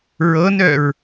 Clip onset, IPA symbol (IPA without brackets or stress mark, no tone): ɹ